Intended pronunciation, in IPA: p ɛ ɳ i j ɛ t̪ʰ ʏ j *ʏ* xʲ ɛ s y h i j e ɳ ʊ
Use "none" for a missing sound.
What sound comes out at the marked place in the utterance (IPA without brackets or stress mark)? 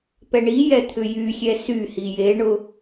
y